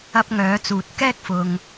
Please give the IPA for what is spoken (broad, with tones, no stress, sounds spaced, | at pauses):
ɐ˧ p̚ ŋ œː˨˧ t͡s uː˨ t̚ k ɛː˥ k̚ f ʊ˧ ŋ